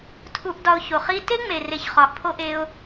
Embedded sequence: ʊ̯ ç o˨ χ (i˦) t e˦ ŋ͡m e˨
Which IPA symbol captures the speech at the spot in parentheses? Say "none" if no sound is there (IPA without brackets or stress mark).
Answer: i˦